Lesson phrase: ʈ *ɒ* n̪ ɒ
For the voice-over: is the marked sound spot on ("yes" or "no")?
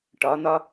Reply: yes